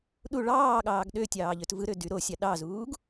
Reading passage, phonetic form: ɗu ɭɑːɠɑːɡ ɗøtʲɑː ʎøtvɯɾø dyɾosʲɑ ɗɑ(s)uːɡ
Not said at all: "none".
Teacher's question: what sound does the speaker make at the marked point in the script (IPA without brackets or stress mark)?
z